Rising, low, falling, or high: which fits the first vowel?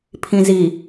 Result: low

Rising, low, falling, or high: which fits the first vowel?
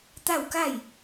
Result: falling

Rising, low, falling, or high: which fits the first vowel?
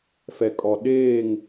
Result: low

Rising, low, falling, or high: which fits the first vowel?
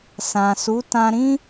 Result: low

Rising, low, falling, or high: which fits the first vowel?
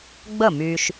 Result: falling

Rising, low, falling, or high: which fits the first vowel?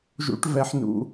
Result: low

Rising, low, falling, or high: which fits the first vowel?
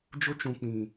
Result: high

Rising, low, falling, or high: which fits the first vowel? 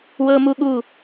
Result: high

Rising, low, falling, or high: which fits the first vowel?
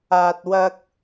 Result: low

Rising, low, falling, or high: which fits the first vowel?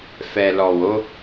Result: low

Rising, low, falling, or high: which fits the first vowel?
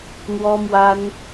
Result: high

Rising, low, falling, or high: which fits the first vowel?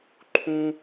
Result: high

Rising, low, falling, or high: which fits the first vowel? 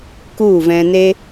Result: falling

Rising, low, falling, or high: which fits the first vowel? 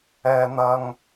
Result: high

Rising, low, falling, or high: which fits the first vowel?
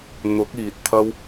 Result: rising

